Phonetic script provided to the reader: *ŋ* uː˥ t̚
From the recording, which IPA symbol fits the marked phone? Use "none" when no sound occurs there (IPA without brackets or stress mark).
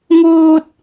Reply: ŋ